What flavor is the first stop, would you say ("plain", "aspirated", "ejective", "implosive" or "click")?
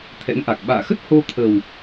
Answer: aspirated